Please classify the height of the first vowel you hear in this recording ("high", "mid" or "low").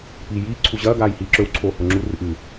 high